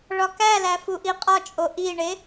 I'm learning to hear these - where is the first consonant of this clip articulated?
retroflex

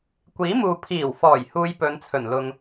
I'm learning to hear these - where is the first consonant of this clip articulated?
velum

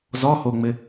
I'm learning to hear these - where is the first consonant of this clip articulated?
tongue tip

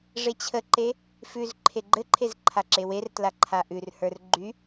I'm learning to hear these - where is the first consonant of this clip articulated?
retroflex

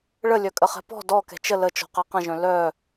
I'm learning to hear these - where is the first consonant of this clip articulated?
retroflex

